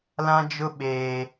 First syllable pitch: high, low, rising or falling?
high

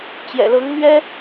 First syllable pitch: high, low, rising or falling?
low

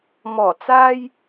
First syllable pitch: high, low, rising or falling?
low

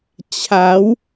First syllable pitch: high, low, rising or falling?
rising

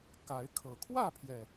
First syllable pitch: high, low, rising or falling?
rising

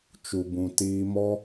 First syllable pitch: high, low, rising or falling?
low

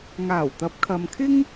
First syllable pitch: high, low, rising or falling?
low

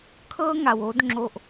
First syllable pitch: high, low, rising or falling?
high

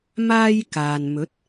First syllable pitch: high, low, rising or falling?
high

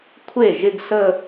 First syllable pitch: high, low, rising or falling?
falling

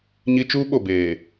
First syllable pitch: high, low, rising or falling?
high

